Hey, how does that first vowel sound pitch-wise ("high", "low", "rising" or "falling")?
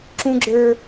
high